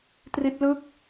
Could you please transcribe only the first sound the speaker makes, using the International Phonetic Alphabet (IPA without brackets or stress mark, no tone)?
t